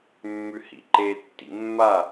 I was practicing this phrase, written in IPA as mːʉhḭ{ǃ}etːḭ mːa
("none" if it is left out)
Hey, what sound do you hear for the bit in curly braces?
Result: ǃ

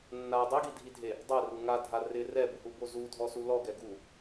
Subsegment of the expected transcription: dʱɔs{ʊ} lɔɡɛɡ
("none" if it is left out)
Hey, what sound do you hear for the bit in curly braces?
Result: u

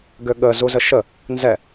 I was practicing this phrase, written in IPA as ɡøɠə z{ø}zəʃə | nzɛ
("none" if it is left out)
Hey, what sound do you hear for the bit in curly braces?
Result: u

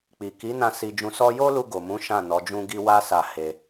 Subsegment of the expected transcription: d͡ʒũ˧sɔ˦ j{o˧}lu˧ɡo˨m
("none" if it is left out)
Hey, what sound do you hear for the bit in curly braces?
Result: o˦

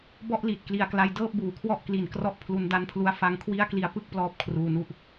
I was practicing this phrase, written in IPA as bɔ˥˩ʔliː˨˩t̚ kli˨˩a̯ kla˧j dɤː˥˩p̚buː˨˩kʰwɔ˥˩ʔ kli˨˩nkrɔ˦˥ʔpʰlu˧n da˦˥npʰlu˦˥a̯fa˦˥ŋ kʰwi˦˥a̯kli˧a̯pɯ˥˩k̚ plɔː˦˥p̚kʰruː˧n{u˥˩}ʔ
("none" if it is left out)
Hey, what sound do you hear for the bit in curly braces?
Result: u˦˥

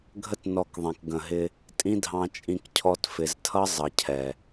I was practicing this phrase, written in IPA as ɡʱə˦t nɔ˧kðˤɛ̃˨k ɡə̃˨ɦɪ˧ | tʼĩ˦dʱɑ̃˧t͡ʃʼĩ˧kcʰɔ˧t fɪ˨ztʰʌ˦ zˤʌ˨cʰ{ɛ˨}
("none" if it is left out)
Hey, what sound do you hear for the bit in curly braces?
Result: ɛ˨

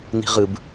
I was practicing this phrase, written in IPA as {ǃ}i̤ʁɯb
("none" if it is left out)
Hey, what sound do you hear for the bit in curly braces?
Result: n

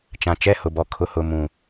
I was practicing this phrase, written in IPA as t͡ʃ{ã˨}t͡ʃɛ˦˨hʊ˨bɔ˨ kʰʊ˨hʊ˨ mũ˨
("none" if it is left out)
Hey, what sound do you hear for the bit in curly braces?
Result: ã˨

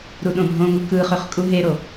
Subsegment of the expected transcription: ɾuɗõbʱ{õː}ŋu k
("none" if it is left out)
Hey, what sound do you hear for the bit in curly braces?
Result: õ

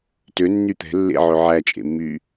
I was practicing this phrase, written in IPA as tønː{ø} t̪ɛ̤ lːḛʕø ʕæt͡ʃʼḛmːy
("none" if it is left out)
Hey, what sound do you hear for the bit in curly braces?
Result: y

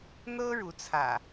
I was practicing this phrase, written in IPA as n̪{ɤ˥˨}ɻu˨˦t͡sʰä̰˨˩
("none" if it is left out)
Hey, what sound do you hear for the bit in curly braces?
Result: ɤ˦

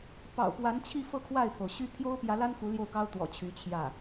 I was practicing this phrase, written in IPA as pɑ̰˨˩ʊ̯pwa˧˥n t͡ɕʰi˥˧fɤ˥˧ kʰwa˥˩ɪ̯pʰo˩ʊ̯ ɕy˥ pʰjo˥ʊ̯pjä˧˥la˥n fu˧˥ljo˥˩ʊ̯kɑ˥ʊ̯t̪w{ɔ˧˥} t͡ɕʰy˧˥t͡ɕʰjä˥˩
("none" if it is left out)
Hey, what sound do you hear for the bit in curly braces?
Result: ɔ̰˨˩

